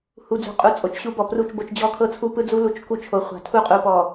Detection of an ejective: present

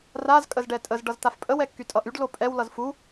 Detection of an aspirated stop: absent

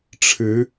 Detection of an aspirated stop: present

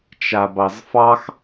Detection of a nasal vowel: absent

